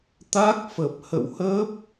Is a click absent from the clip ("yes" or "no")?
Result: yes